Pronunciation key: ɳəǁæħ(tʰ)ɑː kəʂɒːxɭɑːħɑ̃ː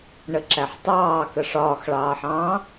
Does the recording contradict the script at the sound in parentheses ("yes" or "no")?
yes